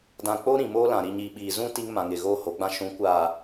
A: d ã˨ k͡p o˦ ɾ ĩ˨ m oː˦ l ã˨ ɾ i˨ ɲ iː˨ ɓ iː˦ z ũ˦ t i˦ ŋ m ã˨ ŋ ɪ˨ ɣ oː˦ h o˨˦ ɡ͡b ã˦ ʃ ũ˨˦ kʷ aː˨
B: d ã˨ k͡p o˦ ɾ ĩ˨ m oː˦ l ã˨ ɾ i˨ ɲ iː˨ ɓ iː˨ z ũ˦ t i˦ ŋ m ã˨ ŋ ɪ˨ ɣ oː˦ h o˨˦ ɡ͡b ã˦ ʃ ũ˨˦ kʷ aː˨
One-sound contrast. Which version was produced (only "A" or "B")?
B